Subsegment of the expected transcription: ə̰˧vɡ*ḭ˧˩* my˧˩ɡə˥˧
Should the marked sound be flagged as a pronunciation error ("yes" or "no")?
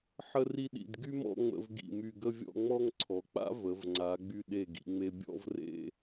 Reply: no